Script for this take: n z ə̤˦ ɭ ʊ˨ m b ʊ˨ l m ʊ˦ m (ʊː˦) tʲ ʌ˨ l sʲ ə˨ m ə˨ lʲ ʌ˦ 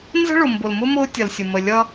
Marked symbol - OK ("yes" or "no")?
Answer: yes